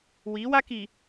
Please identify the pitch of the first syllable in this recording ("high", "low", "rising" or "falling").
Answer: rising